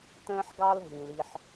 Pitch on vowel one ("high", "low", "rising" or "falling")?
high